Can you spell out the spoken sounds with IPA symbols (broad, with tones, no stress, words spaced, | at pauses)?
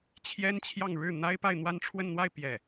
t͡ɕʰjɛ˥n t͡ɕʰjɑ˥˧ŋ ɻɻ̩˥˩ n̪a˥ɪ̯pa˥˧ɪ̯ n̪wa˥˧nʈ͡ʂʰwə˥˧nn̪wa˥˧ɪ̯ pjɛ˥˩